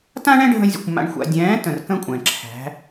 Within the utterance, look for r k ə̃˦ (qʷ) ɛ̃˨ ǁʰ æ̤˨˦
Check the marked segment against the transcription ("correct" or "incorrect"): incorrect